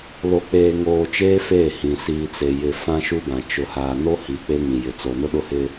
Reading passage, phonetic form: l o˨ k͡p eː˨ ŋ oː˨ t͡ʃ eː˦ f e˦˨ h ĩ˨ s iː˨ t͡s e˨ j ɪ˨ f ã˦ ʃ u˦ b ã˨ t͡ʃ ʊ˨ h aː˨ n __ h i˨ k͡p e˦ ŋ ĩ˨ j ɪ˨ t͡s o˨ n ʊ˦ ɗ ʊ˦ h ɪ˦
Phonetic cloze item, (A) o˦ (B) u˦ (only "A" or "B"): A